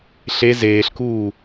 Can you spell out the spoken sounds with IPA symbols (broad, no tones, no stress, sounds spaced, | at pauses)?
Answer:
ɬ e z eː ɬ k uː